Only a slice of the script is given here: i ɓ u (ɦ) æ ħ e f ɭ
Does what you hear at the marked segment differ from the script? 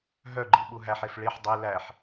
no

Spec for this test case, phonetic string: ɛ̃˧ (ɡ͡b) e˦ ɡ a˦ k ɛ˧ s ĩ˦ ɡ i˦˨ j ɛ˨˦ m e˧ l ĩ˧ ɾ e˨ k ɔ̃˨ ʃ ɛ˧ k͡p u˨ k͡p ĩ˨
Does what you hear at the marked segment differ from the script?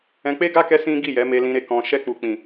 yes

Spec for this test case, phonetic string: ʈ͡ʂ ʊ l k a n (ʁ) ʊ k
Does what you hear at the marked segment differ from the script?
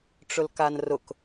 yes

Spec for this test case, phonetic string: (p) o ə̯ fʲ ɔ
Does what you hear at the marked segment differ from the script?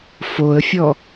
yes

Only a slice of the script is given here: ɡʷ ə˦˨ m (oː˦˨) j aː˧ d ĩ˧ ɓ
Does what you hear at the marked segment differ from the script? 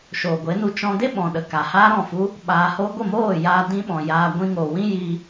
no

